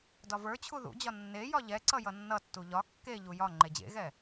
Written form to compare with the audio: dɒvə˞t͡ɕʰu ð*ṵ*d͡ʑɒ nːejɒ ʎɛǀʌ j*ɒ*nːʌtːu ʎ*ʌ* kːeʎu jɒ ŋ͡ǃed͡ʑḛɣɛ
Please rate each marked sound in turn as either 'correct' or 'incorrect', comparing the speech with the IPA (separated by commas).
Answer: correct, incorrect, incorrect